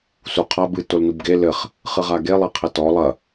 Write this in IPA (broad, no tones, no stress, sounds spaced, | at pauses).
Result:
s u qʰ a b ɨ t o l n u b ɡ e l ɘ χ | χ ɨ ʁ a ɡ e lˠ e qʰ ɛ t ɔ lˠ ɐ